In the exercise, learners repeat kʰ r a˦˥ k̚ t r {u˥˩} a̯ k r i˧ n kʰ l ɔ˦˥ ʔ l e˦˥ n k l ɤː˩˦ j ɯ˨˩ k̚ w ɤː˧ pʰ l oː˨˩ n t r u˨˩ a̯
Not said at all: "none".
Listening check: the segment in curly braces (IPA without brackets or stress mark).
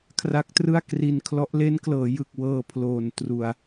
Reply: ɯ˥˩